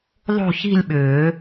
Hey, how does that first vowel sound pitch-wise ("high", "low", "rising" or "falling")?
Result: falling